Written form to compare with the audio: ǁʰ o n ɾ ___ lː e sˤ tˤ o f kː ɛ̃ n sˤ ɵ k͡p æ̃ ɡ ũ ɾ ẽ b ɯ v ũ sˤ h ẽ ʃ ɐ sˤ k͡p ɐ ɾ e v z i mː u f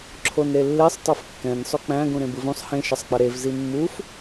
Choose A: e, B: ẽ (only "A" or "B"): A